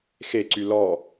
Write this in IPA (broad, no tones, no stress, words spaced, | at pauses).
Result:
xeǀy lɔ